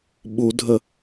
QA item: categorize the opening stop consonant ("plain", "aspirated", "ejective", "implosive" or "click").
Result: implosive